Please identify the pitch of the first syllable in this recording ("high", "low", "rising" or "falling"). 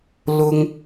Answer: high